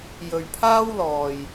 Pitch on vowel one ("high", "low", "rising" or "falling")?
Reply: low